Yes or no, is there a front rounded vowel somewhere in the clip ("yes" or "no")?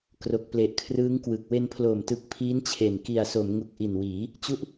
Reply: no